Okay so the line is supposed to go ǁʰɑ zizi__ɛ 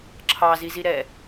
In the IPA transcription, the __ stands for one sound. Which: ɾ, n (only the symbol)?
ɾ